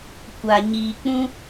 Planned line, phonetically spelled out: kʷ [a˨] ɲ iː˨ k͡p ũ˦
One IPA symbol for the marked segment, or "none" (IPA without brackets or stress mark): a˨